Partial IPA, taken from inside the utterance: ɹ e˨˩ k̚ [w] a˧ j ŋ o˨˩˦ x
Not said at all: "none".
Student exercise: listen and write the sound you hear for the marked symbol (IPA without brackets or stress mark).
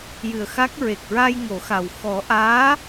ɹ